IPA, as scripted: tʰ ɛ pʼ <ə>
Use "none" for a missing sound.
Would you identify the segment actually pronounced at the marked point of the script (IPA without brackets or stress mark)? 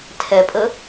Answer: ə